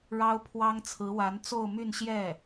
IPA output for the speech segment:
ɻ ɑ˥ ʊ̯ pʰ w ɑ˥ ŋ t͡sʰ ɹ̩˧˥ w a˧˥ n t͡s o˥˧ ʊ̯ m y˥˧ n ɕ j ɛ˥˩

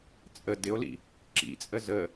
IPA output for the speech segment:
t͡sʼ ə d ɪ o̯ l ḭ | ǁ ḭ t͡sʼ ə z ə

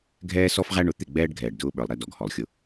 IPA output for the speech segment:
ɡʱ ɛː˦ s ɔ˦ f ʁ æ˦ ɳ ʊ˨˦ t̪ ɪ˦˨ ɡ͡b ɛː˦ ɖ ɡʱ ɛː˨ ɖ d ʊː˦ ɓ ə˞˨ lˠ ɾ ɛ˦ d ɔ˨ ɡ h ɔ˨ lˠ xʲ ʊ˦

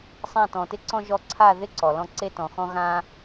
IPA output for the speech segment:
sˤ ã˥˨ t ɔ̃˨ t ɪ˥ ǀ ɔ̃˥ ʒ ɔ˧˥ ǀʰ a˥˨ ð ɪ˥ ǀ ɔ˨ l ɔ̃˥˨ ǀ e˥ t ɔ̃˨ x ɔ̃˥ ɣ ã˥

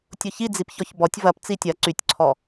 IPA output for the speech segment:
tʲ ʊ ç i d͡z i p ç ɔ ç b ɔ tʲ v ɐ p t͡s i tʲ ɐ ǀ y tʲ ǀʰ ɔ

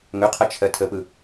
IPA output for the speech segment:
ŋ ɵ qʰ ɐ t͡ʃʰ ɜ tʰ ə p ɯ

